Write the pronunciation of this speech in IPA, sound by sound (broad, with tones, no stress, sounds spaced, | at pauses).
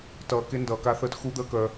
t ʌː˧ k e˦ n d ʌː˧ k a˦ θ əː˦ t x u˦ d̪ əː˦ k œ˧